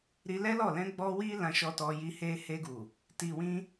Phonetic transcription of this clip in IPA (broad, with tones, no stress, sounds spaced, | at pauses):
ɾ i˧ l ɛ˦ l ɔ˦˨ l ɛ̃˧ ɡ͡b ɔ˧ w i˦ l ã˧ ʃ ɔ˧ t ɔ˧ j i˧ h e˧ h e˧ ɡ u˨ | t i˨ w ĩ˧